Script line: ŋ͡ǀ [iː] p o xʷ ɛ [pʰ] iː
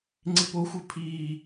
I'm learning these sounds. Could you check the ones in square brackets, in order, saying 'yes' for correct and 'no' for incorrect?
no, yes

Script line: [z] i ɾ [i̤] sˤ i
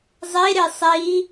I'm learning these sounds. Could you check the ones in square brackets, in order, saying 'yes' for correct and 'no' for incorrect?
no, no

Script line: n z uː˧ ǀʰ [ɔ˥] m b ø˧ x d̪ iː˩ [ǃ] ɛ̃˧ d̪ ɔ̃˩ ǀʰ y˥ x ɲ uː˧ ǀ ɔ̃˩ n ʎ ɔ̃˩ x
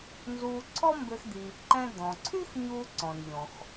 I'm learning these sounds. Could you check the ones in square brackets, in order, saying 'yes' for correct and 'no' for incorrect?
yes, yes

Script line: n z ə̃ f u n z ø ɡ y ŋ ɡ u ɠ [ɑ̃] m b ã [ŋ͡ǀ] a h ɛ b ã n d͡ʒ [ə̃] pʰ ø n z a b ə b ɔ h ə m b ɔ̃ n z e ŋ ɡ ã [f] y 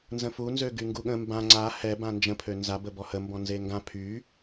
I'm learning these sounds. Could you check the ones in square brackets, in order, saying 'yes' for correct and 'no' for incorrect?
no, yes, yes, no

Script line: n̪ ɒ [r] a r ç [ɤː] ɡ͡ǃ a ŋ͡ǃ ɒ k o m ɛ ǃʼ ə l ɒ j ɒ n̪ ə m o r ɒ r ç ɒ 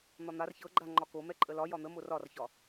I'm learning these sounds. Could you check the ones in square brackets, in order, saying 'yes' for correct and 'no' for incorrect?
no, no

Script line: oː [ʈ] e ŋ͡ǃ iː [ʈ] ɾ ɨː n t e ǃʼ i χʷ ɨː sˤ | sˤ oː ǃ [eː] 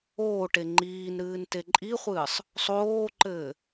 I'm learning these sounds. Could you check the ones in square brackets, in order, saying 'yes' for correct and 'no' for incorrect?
yes, no, no

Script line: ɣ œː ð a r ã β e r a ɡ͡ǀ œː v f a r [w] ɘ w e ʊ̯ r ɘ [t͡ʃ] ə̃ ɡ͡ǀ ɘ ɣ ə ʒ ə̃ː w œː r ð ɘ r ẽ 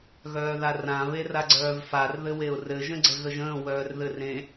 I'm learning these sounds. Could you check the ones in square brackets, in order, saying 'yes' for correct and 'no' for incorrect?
no, no

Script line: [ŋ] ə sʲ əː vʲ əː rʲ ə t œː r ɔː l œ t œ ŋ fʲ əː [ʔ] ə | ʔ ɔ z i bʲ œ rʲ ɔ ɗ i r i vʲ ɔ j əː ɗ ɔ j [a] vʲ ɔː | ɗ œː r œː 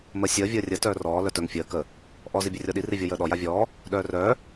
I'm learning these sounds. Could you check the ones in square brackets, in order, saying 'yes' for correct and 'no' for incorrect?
no, no, yes

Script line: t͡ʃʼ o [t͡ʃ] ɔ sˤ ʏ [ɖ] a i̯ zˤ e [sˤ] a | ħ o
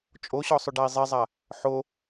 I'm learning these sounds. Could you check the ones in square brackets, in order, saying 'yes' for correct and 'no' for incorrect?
no, yes, no

